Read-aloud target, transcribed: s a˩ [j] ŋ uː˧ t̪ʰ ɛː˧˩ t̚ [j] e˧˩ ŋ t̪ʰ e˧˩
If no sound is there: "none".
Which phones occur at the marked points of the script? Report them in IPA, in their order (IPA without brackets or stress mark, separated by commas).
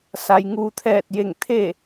j, j